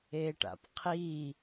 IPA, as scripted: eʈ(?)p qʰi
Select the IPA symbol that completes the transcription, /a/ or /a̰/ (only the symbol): a̰